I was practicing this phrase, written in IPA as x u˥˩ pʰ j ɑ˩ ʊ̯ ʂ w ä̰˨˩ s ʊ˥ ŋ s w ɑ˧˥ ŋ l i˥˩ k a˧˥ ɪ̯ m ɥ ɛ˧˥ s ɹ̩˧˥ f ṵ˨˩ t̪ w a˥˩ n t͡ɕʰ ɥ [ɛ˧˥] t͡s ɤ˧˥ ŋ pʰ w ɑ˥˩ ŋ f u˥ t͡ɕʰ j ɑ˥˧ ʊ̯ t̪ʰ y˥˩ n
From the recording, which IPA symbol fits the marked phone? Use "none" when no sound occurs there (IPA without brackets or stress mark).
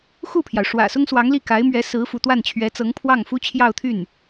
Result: ɛ˧˥